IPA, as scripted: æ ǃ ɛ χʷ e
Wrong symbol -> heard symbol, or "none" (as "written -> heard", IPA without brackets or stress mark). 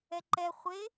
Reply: æ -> ɛ